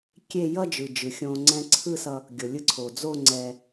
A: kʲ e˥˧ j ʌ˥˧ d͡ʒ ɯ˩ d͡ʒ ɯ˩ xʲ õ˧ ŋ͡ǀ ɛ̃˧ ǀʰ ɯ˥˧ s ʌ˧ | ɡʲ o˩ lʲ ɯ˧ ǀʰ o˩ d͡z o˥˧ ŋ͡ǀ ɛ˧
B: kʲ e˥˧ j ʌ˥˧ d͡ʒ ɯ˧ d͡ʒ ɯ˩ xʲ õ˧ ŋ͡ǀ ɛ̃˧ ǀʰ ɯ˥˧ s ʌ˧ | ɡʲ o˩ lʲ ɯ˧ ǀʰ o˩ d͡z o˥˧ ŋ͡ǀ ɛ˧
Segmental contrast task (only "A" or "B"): A